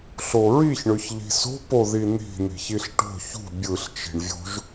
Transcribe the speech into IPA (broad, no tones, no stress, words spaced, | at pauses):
ɬoɹiç ɳøçʎi̤so̤ poðin̪i̤ n̪i̤çiɬʈo̤ çṳ bʲɯɬ t͡ʃi̤ɳvʲo̤ʒ